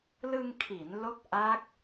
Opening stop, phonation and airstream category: aspirated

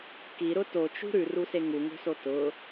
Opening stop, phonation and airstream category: plain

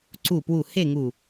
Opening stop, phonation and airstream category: click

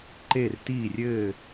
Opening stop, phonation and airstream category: click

